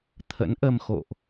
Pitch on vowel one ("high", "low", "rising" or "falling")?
rising